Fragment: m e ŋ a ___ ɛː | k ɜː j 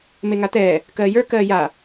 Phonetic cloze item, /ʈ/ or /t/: t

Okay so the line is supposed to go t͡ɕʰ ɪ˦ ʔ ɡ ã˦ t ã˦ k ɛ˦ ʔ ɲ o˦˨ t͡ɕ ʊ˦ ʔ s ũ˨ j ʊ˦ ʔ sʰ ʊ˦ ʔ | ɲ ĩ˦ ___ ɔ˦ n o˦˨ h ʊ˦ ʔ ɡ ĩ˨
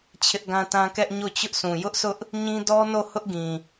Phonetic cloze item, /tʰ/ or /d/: d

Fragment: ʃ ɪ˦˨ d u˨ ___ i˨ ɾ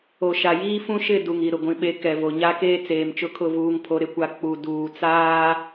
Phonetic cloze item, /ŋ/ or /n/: ŋ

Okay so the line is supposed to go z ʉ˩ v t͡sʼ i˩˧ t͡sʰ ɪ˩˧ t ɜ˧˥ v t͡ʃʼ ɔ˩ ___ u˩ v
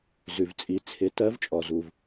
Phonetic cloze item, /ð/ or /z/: z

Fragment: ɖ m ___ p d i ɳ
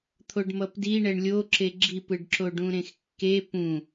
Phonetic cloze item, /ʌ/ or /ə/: ʌ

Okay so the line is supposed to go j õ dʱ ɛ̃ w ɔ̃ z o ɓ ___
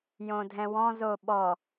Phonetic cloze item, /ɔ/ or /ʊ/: ɔ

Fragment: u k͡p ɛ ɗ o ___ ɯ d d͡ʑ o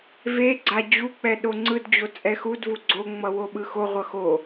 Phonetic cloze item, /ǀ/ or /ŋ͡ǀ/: ŋ͡ǀ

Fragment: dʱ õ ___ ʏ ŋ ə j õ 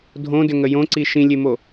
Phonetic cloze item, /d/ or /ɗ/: d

